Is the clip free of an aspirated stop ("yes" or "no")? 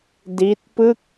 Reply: yes